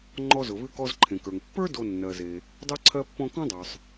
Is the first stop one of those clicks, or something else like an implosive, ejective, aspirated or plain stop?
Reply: click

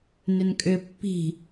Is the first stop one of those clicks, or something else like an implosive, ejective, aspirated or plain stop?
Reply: ejective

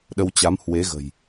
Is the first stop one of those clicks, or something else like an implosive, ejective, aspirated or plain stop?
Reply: implosive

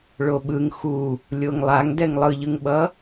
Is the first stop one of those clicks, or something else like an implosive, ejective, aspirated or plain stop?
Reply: implosive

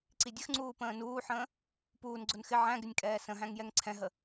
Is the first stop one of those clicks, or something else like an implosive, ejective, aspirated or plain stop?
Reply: click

